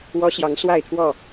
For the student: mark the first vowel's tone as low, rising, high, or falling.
high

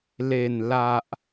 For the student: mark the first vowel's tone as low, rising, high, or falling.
low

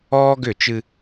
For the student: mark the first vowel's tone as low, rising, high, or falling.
high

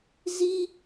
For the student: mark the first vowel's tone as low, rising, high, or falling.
high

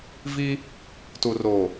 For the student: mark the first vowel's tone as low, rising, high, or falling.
high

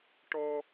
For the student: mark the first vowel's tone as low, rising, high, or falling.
high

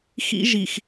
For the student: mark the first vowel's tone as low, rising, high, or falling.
high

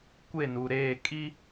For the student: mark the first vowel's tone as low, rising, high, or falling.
falling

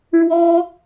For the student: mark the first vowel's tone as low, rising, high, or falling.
high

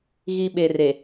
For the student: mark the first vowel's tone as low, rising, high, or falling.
low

